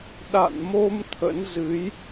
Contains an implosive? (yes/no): yes